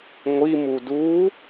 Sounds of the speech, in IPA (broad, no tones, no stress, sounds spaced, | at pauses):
ŋʷ i m u d uː